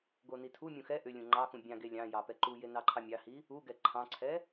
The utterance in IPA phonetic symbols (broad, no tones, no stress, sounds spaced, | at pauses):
ɡ o n i tʰ u mʲ ũ x ɛ ʔ ʏ lʲ ũ ŋ͡ǃ ɑ x ũ bʲ ɑ̃ ɡ e lʲ ɑ̃ j ɑ p ɛ ǃ u j e n ɑ ǃʰ ɑ mʲ ɑ h i | u ɡ ɛ ǃʰ ɑ̃ ǀʰ ɛ